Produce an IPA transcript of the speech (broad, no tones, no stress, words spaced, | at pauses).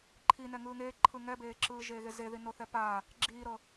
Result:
ǃʰi nɛŋɯːŋeː ǃʰɯŋɛbeːǁɯː ʒeːɣezeði noθɛpa | ɡ͡ǁiːɾɤ